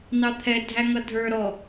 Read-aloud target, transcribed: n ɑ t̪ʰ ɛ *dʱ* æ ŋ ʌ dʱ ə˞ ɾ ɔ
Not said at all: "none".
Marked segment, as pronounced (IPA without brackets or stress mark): dʱ